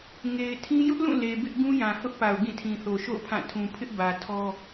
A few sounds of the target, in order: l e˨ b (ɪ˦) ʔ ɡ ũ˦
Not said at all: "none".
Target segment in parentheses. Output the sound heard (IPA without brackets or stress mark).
ɪ˦